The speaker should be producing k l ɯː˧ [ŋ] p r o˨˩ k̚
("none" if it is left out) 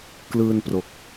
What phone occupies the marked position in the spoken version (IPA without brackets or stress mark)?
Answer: n